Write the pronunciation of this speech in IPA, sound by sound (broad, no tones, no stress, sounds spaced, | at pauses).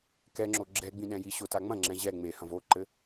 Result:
k ɛ ŋ͡ǁ o ɡ͡ǁ ɛ ɡ͡b ĩ ɗ ɛ̃ j i ɕ o t a ŋ͡m ɐ̃ ŋ͡ǁ ɛ̃ ʑ ɛ ŋ͡m e h ɐ̃ v o ǃ ɘ